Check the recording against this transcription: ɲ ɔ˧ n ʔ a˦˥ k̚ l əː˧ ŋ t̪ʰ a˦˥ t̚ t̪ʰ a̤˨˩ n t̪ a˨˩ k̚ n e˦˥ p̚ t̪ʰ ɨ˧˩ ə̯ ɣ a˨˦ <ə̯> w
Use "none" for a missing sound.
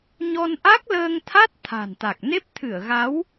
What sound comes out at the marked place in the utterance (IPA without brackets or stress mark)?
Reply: none